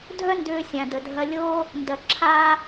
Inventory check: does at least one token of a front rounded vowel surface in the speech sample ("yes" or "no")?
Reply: yes